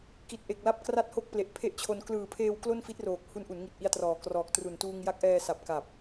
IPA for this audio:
ki˨˩t̚ʔe˨˩k̚la˦˥p̚kra˦˥t̚ ho˥˩k̚ple˨˩ʔpʰe˥˩ʔt͡ɕʰo˧n klɯː˨˩pʰeː˧w klo˥˩nfi˦˥t̚roː˨˩k̚ hu˦˥nʔu˩˦nŋi˨˩t̚ ʔi˧a̯trɔː˨˩krɔː˨˩k̚ tru˨˩ntuː˧ŋ ja˦˥k̚ʔɛː˧sa˨˩p̚ka˨˩p̚

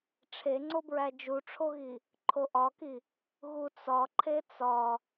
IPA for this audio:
ʈ͡ʂʰeŋ͡ǀobɹæ d͡ʒuʈ͡ʂʰoɣi | ǃʰoʔɒki | ɣut͡sɒ ǃʰet͡sɒ

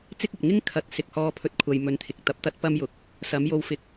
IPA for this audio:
t͡sɪ˥k̚ɐ˨p̚ ŋɪ˥ŋkʰɐ˨˥t̚ sɪ˨k̚hɔː˧pʰɵ˧t̚kʷʰɐ˨j mɵ˨nt̪ʰɪ˨k̚t̪ɐ˨˥p̚ t̪ɐ˥t̚pɐ˥mjʊ˨k̚ | sɐ˨˥mjo˧wfɪ˧k̚

